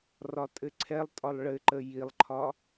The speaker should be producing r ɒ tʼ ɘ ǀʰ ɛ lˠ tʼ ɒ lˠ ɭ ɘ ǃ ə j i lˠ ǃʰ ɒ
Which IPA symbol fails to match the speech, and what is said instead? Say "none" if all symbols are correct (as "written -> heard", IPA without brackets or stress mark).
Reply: none